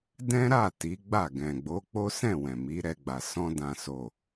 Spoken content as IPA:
d ɛ̃˦ ɾ a˦˨ t i˨˦ ɡ͡b a˦˨ ɡ ɛ̃˨ ɡ͡b o˨˦ k͡p o˦ s ɛ̃˦˨ w ɛ̃˨ m i˨˦ ɾ ɛ˧ ɡ͡b a˨ s ɔ̃˧ d ã˨ s o˨

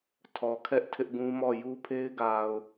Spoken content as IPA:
tʰ ɔ˨ kʰ ɛ˦ ʔ tʰ ɪ˦ ʔ ɡ ũ˦ m ɔ˦˨ j u˦ pʰ e˦ ɪ̯ ɡ a˨ ʊ̯

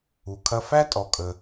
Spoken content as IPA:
u˩ kʰ ɐ˧ f æ˥ tʼ ɔ˩ kʼ ə˩

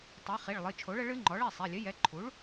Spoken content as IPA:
tˤ ɛ˩˥ χ i˩˧˩ ɭ lˠ ɨ˩˧˩ t͡ʃʰ o˩˥ ɭ ə˩˥ ɭ ɨ˩˥ ŋ͡ǃ ɔ˩˥ ɭ ɛ˩˧˩ sˤ ɛ˩˧˩ lʲ ɘ˩˥ j ɛ˩˥ ǃʰ u˩˥ ɭ

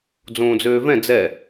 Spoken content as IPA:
d͡z õː d͡z øː v ɛ̃ d͡z ɛ

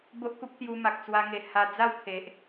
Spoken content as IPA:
b o˦ ʔ k u˦ p̚ t̪ j u˧ m a˨ k̚ t͡s w a˧ ŋ e˨˩ h a˧ d͡z a˥˧ w kʰ e˨ ʔ

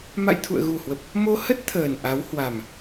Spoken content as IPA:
m a̰˧˨ j t̪ʰ ṵ˧˨ ə̯ ɣ u˨˩ h w ə˨˩ p̚ | m o˧ h ə˦˥ t̚ t̪ʰ əː˨˩ n ʔ a˨˦ w h w a˨˩ m

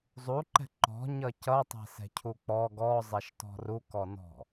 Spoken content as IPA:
zˤ u ǃ ɛ̤ ǃ ɔ̤ ɲ ʌ c ʌ tˤ ɛ̤ s ɛ̤ cʰ u k͡p ɔ ɡ ɔ zˤ ɛ ʃ t ɔ̤ r u k ɔ n ɔ̤

